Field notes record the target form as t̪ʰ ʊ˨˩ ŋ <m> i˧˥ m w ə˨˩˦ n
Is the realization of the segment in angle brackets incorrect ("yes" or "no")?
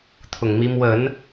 no